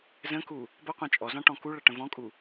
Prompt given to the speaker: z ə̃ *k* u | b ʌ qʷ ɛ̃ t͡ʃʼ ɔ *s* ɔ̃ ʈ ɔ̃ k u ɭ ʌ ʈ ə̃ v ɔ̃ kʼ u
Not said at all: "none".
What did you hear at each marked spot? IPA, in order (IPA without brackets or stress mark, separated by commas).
k, z